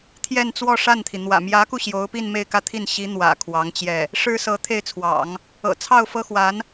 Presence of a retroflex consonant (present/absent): present